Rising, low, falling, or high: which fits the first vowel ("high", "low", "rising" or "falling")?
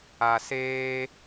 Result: low